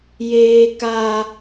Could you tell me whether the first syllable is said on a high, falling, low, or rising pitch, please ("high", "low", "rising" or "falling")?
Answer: high